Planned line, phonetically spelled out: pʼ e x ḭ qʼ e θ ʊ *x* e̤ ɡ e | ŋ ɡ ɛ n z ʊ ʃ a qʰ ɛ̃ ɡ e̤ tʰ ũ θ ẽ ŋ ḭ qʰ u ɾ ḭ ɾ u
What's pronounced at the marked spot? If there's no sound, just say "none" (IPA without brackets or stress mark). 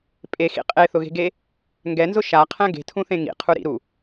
ɣ